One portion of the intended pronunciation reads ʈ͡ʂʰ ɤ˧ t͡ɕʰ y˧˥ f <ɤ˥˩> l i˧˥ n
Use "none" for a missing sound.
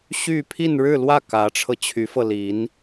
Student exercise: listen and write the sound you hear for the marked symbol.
ɤ˧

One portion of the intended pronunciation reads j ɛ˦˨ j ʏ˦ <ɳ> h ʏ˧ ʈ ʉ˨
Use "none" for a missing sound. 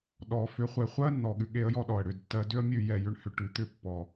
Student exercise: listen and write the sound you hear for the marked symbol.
ɳ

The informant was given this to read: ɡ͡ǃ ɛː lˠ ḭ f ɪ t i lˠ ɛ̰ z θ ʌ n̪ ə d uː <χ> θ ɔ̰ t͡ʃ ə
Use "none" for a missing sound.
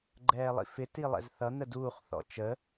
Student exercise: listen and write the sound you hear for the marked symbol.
χ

